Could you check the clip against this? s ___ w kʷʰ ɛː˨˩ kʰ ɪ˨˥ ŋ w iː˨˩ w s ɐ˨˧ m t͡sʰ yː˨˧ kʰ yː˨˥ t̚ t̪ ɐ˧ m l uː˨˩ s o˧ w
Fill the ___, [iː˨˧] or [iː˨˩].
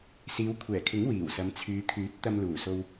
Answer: iː˨˧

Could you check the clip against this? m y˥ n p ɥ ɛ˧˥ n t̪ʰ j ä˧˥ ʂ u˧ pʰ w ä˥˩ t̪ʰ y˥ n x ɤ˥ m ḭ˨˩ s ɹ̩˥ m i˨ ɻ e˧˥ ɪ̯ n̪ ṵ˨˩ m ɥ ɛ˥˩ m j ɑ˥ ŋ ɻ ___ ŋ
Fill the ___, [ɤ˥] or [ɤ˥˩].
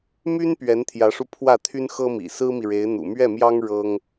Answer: ɤ˥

